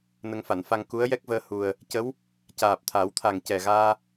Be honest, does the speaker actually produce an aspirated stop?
yes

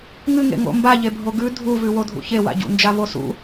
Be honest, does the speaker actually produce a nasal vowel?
no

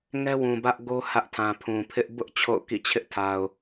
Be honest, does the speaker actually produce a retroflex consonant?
no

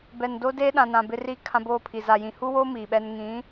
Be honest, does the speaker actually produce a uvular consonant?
no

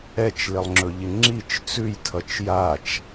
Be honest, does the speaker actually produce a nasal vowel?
no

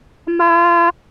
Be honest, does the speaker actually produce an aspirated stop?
no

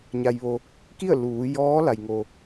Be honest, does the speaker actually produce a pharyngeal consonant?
no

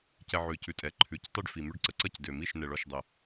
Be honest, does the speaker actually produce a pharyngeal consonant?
yes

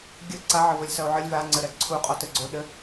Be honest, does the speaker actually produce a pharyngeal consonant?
yes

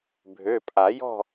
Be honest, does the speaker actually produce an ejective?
yes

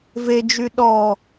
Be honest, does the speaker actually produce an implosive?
yes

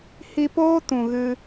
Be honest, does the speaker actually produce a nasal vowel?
yes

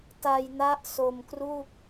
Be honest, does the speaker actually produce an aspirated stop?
no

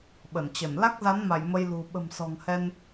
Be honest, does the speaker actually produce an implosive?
yes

